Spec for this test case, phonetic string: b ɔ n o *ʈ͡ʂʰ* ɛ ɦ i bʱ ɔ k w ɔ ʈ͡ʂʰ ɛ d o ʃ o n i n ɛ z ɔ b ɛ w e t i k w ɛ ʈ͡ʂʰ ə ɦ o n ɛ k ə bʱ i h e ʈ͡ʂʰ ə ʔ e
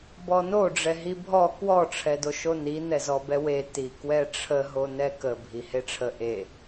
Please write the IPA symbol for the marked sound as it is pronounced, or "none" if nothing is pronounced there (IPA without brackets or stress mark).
ɖ͡ʐ